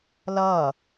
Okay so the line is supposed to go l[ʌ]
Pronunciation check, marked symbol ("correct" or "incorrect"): correct